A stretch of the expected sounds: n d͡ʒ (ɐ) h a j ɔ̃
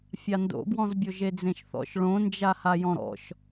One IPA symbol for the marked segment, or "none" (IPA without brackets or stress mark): a